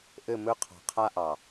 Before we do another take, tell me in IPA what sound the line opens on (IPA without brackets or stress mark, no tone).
ʔ